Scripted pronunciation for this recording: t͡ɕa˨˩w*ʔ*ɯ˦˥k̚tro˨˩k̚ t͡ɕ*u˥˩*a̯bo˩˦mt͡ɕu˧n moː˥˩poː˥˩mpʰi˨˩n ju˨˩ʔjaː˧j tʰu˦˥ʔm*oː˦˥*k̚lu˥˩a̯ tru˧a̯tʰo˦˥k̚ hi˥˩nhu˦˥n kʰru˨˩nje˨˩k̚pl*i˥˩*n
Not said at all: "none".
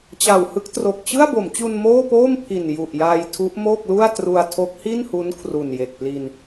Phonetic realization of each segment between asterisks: h, ɯ˥˩, oː˥˩, i˧

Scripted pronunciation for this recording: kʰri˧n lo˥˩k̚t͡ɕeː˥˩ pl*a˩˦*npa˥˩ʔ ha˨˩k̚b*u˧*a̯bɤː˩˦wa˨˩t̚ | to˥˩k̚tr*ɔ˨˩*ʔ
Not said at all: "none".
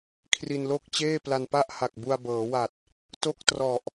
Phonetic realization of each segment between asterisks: a˧, u˧, ɔ˨˩

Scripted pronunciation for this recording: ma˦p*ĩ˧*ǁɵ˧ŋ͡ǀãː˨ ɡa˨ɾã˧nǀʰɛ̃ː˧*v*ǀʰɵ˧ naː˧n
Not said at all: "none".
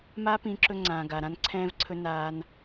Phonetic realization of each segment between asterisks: ĩ˧, v

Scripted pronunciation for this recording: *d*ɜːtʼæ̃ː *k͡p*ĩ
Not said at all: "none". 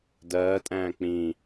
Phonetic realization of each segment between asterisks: d, k͡p

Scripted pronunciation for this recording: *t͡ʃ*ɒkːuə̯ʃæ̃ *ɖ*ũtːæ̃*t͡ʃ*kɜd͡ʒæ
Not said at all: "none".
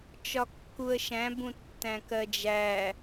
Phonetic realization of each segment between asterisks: t͡ʃ, b, none

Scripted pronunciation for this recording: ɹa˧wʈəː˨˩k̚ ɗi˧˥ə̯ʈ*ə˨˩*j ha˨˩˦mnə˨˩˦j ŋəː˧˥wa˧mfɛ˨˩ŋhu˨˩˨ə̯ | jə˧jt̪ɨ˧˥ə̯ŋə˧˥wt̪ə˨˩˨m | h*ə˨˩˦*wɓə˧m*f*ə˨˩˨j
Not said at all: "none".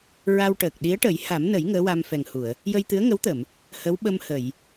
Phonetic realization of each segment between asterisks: ə˨˩˦, ə˧˥, h

